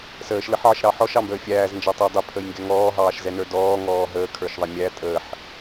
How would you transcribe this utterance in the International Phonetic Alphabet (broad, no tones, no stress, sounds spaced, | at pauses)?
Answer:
s əː ʃ l ə ħ ʕ ə ʃ ɾ ɑ ħ ɔ ʃ ɑ m b əː fʲ æː z n d͡ʒ ɑ tˤ əː dˤ ə pʰ ə j ŋ ɡ ɛ ŋ ɔː ɦ ɑː ʃ z ɛ n ə˞ d ɔː ŋ ɔː ɦ əː kʰ ə˞ ʃ ðˤ ɛ mʲ æ tʼ əː ħ